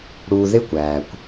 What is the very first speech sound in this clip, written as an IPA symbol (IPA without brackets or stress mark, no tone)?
ɽ